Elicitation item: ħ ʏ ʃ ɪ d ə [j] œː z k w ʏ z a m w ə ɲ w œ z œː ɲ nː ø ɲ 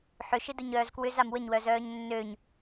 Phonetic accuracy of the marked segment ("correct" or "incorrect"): incorrect